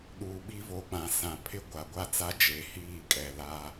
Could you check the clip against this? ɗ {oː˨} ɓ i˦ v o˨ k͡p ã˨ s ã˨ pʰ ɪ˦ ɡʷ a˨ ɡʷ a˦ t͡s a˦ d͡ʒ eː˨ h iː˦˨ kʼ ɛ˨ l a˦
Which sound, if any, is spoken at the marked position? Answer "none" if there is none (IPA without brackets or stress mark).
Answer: uː˨